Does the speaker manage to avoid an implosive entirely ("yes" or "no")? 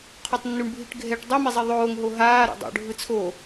yes